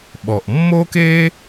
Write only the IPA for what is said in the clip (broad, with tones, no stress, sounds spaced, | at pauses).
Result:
ɓ ɔ˩ ʔ mː o˥ k e˥